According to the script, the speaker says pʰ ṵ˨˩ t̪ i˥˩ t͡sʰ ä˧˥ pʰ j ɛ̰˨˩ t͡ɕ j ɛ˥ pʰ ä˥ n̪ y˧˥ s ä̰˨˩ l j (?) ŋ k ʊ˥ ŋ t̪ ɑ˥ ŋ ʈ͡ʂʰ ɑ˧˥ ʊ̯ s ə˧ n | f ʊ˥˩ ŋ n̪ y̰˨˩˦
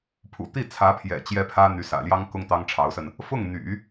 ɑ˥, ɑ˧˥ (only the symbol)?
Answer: ɑ˥